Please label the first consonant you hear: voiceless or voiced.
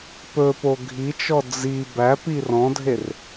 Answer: voiceless